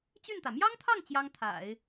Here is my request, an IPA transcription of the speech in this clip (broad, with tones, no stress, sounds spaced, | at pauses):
t͡ɕ y˥˩ n t̪ ä˩ m j ɑ˥ ŋ t̪ʰ ɑ˥˩ ŋ t͡ɕ j ɑ˥ ŋ t̪ʰ a̰˨˩˦ ɪ̯